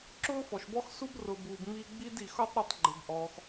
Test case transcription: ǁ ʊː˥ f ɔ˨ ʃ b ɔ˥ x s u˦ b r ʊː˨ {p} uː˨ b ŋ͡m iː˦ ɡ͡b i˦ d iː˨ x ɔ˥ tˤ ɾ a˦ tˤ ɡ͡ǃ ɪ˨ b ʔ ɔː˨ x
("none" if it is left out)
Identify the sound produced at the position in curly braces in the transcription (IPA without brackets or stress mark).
b